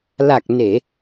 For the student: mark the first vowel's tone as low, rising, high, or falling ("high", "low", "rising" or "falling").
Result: low